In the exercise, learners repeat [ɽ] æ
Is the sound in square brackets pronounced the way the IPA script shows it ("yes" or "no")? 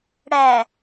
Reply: yes